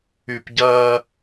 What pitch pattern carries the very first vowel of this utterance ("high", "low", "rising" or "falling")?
low